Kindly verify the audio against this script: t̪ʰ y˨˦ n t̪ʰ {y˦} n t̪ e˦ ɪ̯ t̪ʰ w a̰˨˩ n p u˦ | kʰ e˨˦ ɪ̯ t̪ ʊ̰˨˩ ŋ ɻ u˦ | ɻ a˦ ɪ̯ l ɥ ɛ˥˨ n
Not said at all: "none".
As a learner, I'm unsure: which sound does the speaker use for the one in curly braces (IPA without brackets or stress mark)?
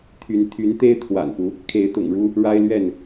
y˨˦